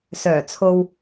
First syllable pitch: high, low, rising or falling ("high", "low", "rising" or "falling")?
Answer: low